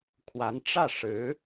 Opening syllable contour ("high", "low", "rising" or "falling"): rising